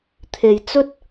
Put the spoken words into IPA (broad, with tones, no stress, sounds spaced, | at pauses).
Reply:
t̪ʰ e˨ j t͡s ɵ˥ t̚